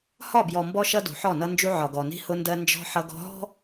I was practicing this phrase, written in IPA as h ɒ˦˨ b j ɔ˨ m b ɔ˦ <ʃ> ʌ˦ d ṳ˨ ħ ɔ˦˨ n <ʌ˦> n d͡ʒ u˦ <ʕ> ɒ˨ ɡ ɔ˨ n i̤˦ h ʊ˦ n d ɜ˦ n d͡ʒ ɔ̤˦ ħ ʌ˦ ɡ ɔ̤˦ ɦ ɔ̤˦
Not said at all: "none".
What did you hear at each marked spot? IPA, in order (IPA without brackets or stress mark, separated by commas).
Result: ʃ, ʌ˦, ʕ